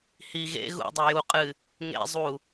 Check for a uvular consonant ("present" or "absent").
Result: present